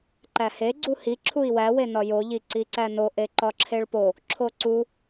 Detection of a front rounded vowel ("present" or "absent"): absent